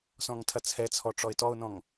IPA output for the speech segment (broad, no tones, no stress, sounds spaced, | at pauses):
s ɔ̃ ŋ tʰ ɐ t͡sʰ ɛ t͡sʰ ɔ ʈ͡ʂ ɔ ɪ̯ t ɔ ʊ̯ n ɔ̃ ŋ